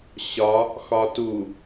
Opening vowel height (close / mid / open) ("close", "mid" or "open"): open